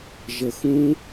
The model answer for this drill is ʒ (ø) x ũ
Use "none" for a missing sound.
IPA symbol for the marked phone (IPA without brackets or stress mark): ə